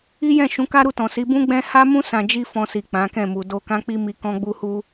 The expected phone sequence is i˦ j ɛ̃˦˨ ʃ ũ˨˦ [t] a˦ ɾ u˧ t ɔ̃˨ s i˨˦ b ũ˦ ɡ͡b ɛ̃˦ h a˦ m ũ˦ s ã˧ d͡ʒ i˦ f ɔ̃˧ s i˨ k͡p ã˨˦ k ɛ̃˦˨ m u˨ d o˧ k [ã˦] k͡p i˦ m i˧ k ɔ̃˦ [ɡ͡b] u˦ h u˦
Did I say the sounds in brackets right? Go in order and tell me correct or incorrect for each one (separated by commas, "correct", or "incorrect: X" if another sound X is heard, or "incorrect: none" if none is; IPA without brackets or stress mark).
incorrect: k, correct, correct